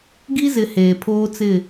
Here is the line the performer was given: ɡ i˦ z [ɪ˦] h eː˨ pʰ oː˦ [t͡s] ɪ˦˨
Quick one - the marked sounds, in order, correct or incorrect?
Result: incorrect: ɪ˨, correct

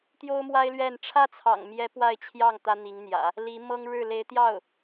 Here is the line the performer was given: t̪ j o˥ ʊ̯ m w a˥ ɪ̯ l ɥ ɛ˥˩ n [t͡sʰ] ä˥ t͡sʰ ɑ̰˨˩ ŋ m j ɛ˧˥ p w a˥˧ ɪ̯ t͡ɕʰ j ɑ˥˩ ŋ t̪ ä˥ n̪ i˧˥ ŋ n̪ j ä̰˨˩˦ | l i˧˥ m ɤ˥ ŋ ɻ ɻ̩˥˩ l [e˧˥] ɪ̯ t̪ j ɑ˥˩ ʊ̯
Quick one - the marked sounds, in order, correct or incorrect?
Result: incorrect: ʈ͡ʂʰ, correct

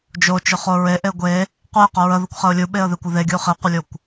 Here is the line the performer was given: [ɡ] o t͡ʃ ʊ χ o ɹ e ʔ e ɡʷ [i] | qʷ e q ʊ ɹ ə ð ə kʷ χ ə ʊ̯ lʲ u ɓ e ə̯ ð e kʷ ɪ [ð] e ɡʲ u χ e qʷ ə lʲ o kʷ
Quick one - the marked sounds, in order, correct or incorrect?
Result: incorrect: d͡ʒ, incorrect: e, correct

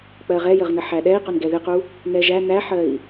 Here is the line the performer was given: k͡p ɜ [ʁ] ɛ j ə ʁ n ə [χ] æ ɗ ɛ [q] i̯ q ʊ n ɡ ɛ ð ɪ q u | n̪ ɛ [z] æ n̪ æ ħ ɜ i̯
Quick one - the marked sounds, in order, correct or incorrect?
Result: correct, incorrect: ħ, incorrect: none, incorrect: ʒ

